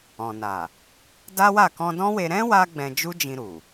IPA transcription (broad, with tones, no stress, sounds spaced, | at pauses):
ɔ̃˨ n a˨ | d a˦ w a˦˨ k ɔ̃˧ d ɔ̃˦ w e˧ ɾ ɛ̃˦ w a˦ ɡ͡b ɛ̃˧ d͡ʒ u˦ d͡ʒ ĩ˧ ɾ u˨